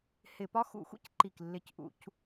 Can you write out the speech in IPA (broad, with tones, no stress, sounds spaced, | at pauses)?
h ɪ˧˩˧ p ɒ˥ x ṵ˧˩˧ xʷ ḭ˥ c ǃ i˨˩ k lː ɪ˨˩ c ʔ ṵ˧˩˧ c